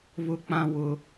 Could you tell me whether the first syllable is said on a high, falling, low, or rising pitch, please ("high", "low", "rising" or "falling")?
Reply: high